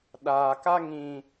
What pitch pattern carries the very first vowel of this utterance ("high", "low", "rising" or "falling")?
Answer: low